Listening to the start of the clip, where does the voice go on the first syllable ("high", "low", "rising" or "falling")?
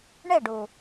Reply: falling